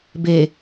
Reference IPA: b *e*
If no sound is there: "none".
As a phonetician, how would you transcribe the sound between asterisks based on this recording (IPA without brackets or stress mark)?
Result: e